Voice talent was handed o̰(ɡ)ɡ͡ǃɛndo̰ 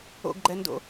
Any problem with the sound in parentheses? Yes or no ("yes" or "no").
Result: no